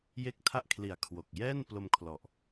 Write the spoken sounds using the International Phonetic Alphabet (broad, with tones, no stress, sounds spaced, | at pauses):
j e˥˩ k̚ tʰ a˥˩ ʔ kʰ l i˨˩ a̯ kʰ w o˨˩ k̚ j ɛː˥˩ n p l o˧ m kʰ l ɔ˨˩ ʔ